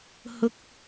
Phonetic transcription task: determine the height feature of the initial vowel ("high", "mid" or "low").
high